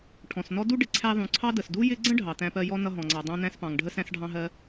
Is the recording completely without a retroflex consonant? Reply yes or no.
no